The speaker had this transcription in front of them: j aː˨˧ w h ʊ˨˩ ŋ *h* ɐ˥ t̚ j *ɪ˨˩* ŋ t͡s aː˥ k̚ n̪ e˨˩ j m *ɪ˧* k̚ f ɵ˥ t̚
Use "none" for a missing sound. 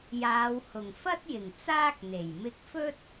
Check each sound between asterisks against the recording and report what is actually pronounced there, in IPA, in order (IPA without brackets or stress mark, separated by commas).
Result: f, ɪ˨˩, ɪ˧